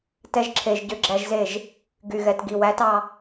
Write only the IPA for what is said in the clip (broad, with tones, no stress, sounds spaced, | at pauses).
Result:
t ɛ˧ ʒ ǁʰ e˨ ʒ ɟ ø˧ ɡ͡ǁ æ˧ ʒ z e˦˨ ʒ | ɡ y˨ ɣ ɛ˨ t ɡ i˨ w æ˨˦ t ɑ˦